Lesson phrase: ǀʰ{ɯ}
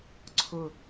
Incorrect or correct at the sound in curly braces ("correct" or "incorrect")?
incorrect